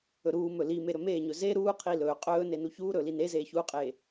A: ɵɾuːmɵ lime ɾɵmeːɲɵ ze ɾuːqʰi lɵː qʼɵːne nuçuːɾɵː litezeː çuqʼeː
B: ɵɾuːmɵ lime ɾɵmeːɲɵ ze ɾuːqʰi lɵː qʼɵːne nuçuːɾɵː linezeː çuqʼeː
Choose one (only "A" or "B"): B